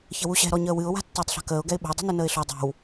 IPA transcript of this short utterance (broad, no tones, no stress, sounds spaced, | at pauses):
ç ə w u ɕ ɛ̤ ɾ ɔ ɲ əː w ɨ ʊ̯ w a̤ tː əː tˤ ɬ a̤ k əː ʊ̯ ɡ ɛ ɪ̯ ɓ ə̤ ʊ̯ dˤ ṳ n ø n əː ɪ̯ ɬ ɔ dˤ ɛ̤ w